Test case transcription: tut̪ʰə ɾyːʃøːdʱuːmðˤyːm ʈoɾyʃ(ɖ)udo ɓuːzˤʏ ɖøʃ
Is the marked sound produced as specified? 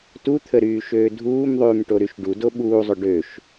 yes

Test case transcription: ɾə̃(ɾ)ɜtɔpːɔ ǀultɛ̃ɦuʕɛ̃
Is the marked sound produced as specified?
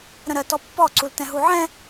yes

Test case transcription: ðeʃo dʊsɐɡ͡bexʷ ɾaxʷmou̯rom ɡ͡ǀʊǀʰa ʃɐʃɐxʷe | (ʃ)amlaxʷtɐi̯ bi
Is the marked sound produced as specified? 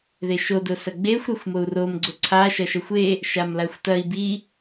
yes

